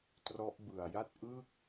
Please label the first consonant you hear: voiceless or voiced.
voiceless